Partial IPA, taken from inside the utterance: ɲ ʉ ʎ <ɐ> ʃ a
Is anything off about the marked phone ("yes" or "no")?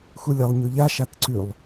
yes